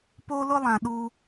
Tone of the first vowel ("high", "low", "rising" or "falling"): high